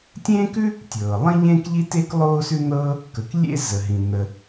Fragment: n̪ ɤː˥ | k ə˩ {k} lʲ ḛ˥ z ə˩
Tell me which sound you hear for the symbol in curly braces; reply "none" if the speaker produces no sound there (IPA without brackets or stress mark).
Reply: k